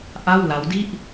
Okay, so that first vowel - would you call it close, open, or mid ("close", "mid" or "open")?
open